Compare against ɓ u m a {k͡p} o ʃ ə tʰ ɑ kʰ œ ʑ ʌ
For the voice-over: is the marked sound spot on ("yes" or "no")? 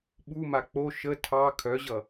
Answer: yes